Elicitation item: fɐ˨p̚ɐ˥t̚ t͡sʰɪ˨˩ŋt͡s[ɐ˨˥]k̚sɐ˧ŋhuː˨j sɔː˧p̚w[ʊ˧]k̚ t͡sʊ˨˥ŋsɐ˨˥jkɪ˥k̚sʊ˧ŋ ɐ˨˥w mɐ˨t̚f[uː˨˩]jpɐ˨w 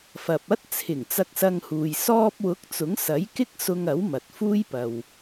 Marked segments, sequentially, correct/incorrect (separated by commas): incorrect, incorrect, incorrect